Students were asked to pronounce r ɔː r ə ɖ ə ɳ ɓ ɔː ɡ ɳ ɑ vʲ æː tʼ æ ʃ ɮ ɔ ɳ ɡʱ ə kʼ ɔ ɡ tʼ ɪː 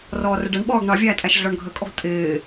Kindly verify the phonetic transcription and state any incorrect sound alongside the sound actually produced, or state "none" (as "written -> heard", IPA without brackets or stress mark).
none